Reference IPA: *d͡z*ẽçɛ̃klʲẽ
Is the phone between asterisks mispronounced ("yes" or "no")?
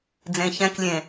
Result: no